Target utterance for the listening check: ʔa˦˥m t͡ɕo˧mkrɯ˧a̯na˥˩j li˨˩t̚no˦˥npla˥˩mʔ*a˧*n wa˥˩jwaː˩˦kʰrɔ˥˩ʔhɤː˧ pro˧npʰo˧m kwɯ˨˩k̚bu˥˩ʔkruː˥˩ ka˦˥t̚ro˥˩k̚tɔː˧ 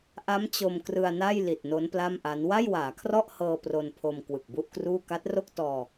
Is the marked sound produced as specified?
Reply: no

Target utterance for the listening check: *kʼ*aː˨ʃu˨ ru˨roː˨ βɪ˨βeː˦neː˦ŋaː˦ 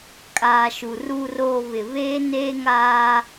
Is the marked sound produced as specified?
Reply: yes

